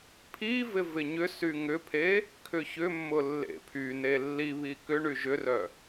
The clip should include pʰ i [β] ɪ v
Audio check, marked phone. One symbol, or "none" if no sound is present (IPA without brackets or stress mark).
v